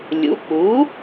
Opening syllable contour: rising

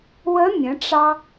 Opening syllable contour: rising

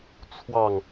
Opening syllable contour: falling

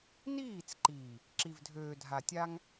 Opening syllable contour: falling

